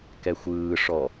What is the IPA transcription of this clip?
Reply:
k ɛ xʷ ɯː ʂ ɔ

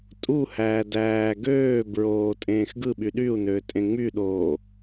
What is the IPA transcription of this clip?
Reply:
tʼ u h æː d æː ɡ øː b ɹ oː tʼ ẽː x ɡ ɯ ɓ y ɗ y u̯ n øː tʼ ẽ ŋ͡m y ɗ oː

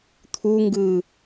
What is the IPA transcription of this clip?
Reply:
t̪ʰ u ŋ ɡ ɯː

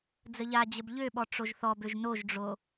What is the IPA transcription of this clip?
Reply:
d͡z ə ʎ a d͡ʑ ə b ʎ ø ɓ ɔ ʈ͡ʂ o ʒ θ ɔ b ø ʒ n o ʒ ɖ͡ʐ o

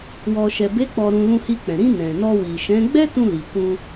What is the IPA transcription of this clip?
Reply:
w ɔ˨ ʃ ɛ˨ b e˨˦ k͡p ɔ˧ ɾ ũ˧ l ũ˧ h i˧ k͡p ɛ̃˨ ɾ ĩ˧ n ɛ̃˨ n ɔ˧ w i˨ ʃ ɛ̃˨˦ ɡ͡b ɛ˦ t ũ˧ l i˨ k ũ˧

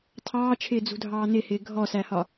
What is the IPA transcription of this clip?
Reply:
tʰ ɑː t͡ʃʰ ɪː d͡z ṳ dʱ ɑː n ɪ h ɪː ɡʱ ɔ s æ h ɒ

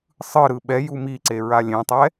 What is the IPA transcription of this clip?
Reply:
sˤ ɯ ɾ ɯ ɓ ɛ j u m i ǀ e ɹ a lʲ ẽ tˤ ɛ

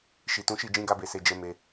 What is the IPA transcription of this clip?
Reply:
ʃ i˨ t ũ˨˦ ʃ i˦˨ d͡ʒ ĩ˧ ɡ a˧ b e˨ s e˨ d͡ʒ ɛ˧ m e˧

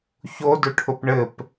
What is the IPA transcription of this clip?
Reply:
ç o d ʊ ʈʰ ʊ p ɳ ɘ p

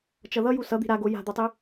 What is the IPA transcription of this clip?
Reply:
t͡ʃ ʌ ð ʌ j u s ʌ d̪ i̤ ɾ a ɡ o j a̤ d̪ o tˤ i

